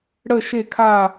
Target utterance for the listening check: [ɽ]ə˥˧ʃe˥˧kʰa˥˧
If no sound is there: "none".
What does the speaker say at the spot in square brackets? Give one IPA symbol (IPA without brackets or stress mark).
ɽ